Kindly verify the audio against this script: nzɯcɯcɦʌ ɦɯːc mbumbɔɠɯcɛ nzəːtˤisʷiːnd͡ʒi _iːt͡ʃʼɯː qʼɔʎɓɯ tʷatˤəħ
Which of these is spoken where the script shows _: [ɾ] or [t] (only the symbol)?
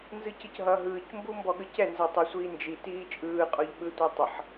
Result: t